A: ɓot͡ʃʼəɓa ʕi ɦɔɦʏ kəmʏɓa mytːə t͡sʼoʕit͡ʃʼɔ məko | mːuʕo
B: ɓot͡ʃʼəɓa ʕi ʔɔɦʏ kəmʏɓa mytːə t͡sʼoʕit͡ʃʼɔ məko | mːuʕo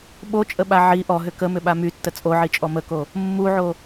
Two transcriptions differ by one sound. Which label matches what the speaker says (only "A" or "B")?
B